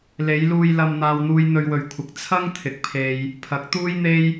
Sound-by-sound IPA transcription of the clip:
l e˨˧ j l uː˧ j l ɐ˧ m n̪ aː˧ w n̪ uː˧ j n̪ ɵ˧ ɥ w ɵ˨ ɥ kʷʰ ɪ˨˥ k̚ t͡sʰ ɐ˥ ŋ t̪ʰ ɪ˨ k̚ pʰ e˧ j | pʰ ɐ˨˥ k̚ t̪ uː˥ j n̪ e˥ j

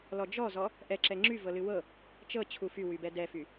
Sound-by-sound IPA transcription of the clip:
l ɔ d͡ʒ ɔ z ɔ | ʔ ɛ ǁ ɛ ŋ͡ǁ y v ɤ l ɨ w ɤ | t͡ʃ ɤ t͡ɕʰ u f y w y b ɛ d ɛ f y

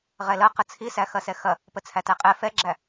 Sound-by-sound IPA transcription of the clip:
ʁ ɛ l ɐ q ə t͡sʰ i s æ x ɐ s ɛ x ɐ | p ə t͡sʰ æ t æ qʼ ɛ f ɛ ɡ͡ǁ æ

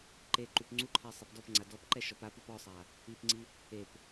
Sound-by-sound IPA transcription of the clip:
ǃ e ǃ u p ŋ͡ǀ u ǃʰ ɛ sˤ ɛ p d ɔ p ŋ͡ǀ a d ɔ p ǃ ɛ ʃ ɔ p a p u p ɔ sˤ a | i p ŋ͡ǀ i | e p

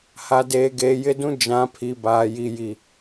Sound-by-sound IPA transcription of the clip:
h a˨ d eː˨ ɡ eː˨ j ɪ˦ d ũ˦ d͡ʒ ã˨˦ pʰ i˨ b aː˨ j i˨ j i˨

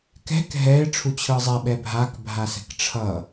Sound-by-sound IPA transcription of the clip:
k ɛ̤ k ɦ ɛ ɪ̯ ʈ͡ʂʰ u t͡ɕʰ ɯ zˤ ɛ ɓ ɛ bʱ a k bʱ a s ɛ̤ k ʈ͡ʂʰ ʌ

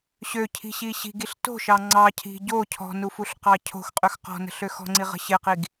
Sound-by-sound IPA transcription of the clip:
ɕ ø cʰ i̤ ɕ i ɕ i̤ ɡ i ɬ t o̤ ʃ ɑ ŋ͡ǀ ɑ cʰ i̤ ɟ o cʰ ɔ̤ n u f u ɬ q ɑ cʰ o̤ x qʼ ø x q ɔ̤ n ə̤ ɬ ø x ɔ̤ ŋ͡ǀ i ʁ ə̤ ɕ ɪ q i ɡ

